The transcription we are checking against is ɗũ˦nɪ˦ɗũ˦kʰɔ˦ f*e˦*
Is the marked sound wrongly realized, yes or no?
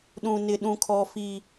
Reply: yes